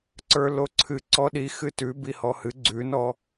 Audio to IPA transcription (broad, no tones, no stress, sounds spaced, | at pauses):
ǀ ə˞ l o ǀʰ ɨ ǀ ɔ ɗ i x ɨ t ʉ b i h ɔ h ɨ ɡ͡ǀ ʉ n ɔ